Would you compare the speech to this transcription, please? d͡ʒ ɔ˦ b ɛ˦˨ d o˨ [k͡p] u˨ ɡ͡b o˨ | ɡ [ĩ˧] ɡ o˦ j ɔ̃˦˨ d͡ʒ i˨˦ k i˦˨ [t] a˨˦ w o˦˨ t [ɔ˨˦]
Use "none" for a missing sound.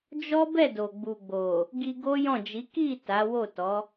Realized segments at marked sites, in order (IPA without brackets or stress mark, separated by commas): ɡ͡b, i˧, t, ɔ˨˦